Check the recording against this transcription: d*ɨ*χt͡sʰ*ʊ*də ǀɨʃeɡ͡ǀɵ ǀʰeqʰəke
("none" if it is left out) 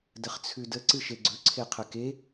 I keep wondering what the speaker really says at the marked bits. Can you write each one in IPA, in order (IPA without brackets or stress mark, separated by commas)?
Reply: ə, ʉ